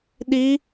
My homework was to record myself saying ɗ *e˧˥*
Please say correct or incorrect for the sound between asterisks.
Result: incorrect